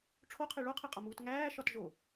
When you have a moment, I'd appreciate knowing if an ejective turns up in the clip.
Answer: yes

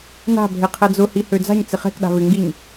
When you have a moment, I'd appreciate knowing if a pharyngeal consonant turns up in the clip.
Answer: no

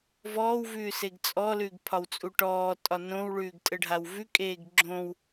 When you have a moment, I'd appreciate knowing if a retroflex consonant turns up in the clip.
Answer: yes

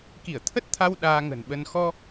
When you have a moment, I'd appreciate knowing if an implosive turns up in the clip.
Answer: yes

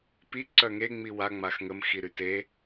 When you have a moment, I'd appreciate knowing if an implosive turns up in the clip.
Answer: no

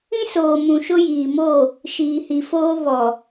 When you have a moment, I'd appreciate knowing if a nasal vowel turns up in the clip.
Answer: yes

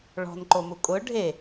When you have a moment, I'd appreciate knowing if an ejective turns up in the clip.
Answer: yes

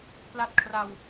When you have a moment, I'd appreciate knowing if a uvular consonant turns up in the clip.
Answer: no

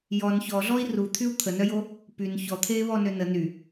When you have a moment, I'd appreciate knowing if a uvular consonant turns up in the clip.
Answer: no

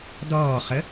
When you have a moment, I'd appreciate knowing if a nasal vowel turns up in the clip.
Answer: no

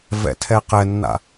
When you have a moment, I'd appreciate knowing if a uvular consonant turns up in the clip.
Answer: yes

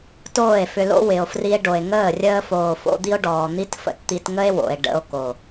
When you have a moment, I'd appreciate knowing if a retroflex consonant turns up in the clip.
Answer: yes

